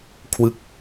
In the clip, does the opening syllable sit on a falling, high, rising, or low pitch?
falling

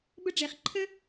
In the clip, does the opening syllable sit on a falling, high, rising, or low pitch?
high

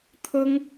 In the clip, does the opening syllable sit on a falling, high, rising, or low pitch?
high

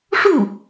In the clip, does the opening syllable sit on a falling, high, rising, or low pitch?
falling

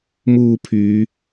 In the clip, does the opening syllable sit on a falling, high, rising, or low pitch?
low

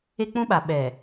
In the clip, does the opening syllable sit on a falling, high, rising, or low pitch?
high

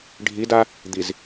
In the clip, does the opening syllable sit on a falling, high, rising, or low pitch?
rising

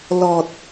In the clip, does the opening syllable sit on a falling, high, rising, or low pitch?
low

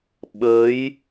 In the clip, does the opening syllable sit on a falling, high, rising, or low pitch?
rising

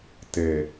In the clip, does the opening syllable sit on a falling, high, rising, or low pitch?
low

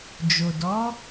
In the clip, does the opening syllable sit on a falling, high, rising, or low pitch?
low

